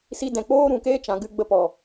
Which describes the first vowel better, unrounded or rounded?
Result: unrounded